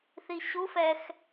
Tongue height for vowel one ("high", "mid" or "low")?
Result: high